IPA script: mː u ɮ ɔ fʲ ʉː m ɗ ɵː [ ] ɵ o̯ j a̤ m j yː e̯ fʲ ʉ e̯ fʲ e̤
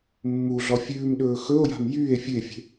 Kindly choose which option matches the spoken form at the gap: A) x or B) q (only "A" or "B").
A